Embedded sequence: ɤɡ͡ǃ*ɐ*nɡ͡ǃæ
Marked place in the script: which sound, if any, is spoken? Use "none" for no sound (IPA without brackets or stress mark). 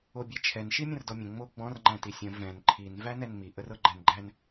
æ